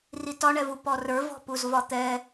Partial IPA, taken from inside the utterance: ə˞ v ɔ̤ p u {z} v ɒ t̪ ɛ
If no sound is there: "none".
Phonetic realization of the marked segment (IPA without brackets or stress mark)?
z